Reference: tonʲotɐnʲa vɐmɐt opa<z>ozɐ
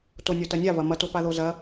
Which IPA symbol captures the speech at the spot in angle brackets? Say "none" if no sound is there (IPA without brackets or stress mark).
ð